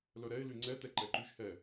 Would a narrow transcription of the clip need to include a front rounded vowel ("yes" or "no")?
yes